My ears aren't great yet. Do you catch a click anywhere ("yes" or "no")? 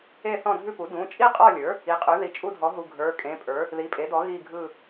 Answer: no